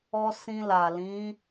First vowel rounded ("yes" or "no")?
yes